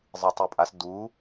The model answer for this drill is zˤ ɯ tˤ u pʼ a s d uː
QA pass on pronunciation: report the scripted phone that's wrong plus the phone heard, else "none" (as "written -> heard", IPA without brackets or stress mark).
none